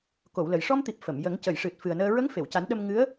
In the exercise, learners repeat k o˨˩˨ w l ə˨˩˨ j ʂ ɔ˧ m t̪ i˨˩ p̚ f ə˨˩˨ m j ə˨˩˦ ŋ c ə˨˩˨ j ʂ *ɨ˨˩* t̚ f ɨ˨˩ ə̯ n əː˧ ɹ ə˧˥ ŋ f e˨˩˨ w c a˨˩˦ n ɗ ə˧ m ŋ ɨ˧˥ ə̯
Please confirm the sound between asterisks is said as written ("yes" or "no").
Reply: yes